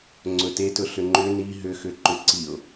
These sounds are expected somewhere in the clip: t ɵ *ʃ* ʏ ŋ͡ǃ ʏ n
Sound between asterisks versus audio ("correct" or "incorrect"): incorrect